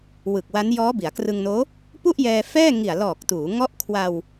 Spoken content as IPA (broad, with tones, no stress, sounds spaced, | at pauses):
w ɯ˨˩ k̚ w a˦˥ n j ɔː˦˥ b i˩˦ a̯ k r ɯ˧ ŋ n oː˦˥ | p u˥˩ ʔ j ɛː˧ f ɛː˥˩ ŋ i˨˩ a̯ l ɔː˨˩ k̚ t uː˩˦ ŋ ɔ˦˥ ʔ kʰ w a˧ w